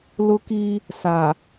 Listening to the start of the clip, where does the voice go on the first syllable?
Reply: high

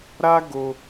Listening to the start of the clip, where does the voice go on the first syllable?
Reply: high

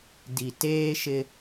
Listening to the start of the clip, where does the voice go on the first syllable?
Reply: low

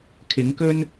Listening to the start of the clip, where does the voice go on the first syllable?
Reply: rising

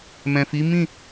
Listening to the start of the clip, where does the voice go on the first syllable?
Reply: low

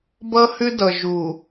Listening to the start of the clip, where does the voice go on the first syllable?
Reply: high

